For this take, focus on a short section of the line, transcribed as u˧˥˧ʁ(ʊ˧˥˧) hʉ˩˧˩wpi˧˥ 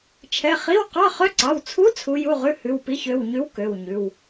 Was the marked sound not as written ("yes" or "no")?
yes